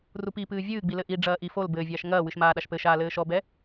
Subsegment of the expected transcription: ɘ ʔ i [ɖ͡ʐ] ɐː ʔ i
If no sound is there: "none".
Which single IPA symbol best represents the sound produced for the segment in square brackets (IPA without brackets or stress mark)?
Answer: ɖ͡ʐ